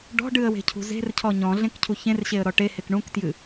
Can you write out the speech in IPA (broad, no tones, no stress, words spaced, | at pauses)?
ɖɔ̤ɖɨə̯we̤cʰṳ ze̤rcʰɔ ɲɔ̃ɮẽkcʰu çẽrɕeə̯ɾɔ ʈehek ɳũktjɨ